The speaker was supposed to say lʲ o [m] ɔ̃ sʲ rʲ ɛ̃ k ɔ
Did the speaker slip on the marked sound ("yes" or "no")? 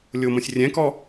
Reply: no